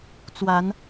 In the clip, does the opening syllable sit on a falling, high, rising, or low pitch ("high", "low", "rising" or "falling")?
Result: rising